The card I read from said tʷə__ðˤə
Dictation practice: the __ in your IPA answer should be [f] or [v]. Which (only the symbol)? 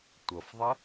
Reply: f